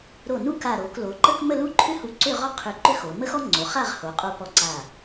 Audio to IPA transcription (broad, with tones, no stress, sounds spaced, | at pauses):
ɾ o˧˩ n u˥ k a˧˩ ɾ o˩˧ k l o˩˧ ǃ ə˥ k m ə˥˧ l u˥˧ ǃʰ ʏ˥ h u˧ ǀ ʏ˥˧ ʁ ɔ˥ qʰ ʏ˧˩ ǃ ʏ˥ x o˩˧ m ə˥ x ɔ˥ ŋ͡ǀ o˩˧ χ a˥˧ ʁ h o˩˧ qʼ o˧ p ɔ˧ ǀ a˧˩